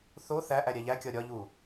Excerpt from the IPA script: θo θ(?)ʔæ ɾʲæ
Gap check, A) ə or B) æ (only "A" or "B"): B